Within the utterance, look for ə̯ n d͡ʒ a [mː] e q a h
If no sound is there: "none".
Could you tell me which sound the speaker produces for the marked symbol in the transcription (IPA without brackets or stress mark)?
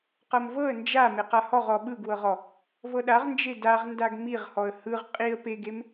m